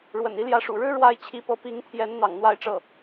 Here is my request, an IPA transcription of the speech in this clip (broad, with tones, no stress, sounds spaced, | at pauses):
ɻ w ə̰˨˩ n i˧˥ l j ä˧˥ ʂ ṵ˨˩ ɻ ɻ̩˥ ɻ w a˧˥ ɪ̯ t͡ɕʰ i˧˥ p ɤ˧˥ p i˧˥ ŋ t̪ʰ j ɛ˧˥ n n̪ ɑ̰˨˩ ŋ n̪ w a˥˧ ɪ̯ ʈ͡ʂ ɤ˥˩